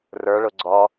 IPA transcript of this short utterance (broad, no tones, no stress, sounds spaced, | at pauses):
r ə˞ ɭ ʊ ɡ͡ǀ ɔ